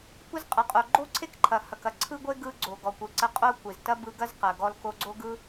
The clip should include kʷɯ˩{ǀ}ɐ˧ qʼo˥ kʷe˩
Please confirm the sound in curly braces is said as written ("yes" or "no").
yes